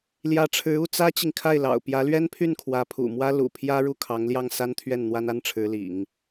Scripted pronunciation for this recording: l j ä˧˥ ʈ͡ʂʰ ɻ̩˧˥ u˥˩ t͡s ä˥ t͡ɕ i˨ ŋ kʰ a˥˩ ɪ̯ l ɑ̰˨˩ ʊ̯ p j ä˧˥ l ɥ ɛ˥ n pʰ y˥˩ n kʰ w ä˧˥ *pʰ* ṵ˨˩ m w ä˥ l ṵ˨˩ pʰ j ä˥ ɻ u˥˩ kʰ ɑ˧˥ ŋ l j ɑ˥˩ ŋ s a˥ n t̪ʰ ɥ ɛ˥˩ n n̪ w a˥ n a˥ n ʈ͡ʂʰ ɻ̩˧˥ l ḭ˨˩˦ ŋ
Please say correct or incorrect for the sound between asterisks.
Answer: correct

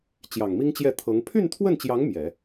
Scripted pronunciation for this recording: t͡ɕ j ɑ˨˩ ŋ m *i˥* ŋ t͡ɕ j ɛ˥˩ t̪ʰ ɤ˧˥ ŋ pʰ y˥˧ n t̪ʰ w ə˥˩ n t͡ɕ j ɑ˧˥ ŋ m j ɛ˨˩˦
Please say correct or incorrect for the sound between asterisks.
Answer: correct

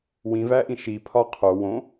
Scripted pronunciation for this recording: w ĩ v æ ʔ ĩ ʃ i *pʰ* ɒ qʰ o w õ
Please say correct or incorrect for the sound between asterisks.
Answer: correct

